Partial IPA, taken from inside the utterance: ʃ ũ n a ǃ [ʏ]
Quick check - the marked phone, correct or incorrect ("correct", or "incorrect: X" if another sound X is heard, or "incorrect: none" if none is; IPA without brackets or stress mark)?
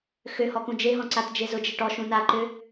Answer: correct